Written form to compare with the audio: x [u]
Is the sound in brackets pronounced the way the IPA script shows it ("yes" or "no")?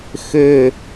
no